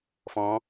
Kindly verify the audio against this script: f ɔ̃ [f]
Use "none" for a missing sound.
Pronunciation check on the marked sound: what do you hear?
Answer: none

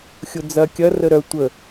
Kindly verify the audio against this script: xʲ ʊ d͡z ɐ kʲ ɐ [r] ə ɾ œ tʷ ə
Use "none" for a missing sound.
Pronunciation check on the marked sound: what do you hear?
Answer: r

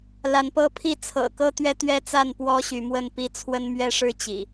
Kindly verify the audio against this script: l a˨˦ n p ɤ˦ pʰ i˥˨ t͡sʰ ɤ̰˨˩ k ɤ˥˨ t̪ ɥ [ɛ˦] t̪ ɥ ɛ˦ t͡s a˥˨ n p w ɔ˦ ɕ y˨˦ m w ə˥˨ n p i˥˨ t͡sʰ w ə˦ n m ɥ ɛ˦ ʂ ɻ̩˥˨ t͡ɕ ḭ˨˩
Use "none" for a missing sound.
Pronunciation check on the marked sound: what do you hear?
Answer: ɛ˦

